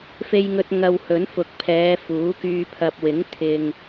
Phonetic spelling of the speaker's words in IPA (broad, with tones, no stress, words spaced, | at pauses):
fe˧jŋɵ˧t̚ ŋɐ˧whɵ˨˥nfʊ˨k̚pʰɛː˨˧ fuː˨˥kyː˧ pʰɐ˨p̚wɪ˨˥ŋ t̪ʰɪ˧ŋ